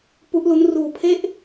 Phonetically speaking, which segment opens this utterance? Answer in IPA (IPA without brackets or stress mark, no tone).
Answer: p